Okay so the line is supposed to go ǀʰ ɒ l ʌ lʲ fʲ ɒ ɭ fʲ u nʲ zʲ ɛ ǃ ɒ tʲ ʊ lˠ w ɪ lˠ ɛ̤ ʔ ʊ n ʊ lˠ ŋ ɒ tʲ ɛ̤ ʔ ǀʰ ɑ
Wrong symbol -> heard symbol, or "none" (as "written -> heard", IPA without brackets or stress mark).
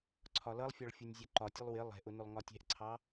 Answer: lʲ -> lˠ